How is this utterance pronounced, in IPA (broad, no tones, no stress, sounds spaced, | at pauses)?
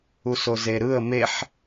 u s o z e ɾ ɯ ə̯ m e ħ